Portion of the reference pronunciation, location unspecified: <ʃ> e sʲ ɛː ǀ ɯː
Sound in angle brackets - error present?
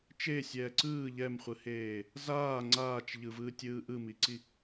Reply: yes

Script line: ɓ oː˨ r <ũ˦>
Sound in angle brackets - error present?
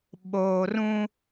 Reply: no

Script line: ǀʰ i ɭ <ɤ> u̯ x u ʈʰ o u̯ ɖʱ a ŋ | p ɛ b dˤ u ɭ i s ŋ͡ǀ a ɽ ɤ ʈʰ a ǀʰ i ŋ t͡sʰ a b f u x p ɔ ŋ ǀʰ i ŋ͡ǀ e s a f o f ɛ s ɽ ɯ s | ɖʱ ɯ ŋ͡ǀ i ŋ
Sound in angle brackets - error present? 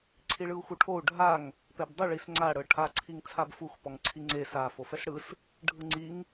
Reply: yes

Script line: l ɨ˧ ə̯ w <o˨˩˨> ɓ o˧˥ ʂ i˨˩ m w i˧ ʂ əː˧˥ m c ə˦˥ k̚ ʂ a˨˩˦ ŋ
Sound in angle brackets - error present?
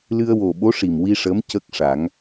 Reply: yes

